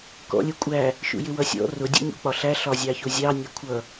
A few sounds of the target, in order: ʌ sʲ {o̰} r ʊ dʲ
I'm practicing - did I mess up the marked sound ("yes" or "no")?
yes